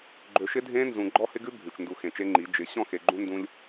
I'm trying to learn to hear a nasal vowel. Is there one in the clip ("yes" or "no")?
yes